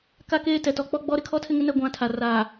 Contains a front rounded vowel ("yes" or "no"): no